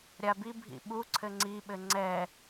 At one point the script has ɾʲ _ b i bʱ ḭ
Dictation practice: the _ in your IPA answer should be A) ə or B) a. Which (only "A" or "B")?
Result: B